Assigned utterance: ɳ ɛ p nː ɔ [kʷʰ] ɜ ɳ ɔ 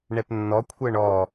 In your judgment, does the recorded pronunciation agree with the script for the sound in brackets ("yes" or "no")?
yes